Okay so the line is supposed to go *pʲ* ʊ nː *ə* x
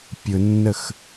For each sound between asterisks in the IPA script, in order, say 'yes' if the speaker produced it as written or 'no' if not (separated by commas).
yes, yes